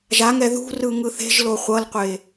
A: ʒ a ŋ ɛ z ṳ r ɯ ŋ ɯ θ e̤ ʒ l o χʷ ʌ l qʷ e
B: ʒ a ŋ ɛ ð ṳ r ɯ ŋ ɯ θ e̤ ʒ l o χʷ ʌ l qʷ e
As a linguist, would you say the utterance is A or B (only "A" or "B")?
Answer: B